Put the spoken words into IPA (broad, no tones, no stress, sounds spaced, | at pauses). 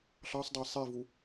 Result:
ɬ ɑ sˤ dˤ æ sˤ i v u